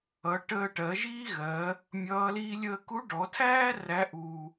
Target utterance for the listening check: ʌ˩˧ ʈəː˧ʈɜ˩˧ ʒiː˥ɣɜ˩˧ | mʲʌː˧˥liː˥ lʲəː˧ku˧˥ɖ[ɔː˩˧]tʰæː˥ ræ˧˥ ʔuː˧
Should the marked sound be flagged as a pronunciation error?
yes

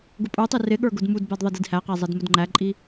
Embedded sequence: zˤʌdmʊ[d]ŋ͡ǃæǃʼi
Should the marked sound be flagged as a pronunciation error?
no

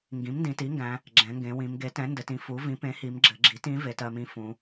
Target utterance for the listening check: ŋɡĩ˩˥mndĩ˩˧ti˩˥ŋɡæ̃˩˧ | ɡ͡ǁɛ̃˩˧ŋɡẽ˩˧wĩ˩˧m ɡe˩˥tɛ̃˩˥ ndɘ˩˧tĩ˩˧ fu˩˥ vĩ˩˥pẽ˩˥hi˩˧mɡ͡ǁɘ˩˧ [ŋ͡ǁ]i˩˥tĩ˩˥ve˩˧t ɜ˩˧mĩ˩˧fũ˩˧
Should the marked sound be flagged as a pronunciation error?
yes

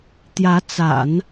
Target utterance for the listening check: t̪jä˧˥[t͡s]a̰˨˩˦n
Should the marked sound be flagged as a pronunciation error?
no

